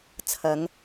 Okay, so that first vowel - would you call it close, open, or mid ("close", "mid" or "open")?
open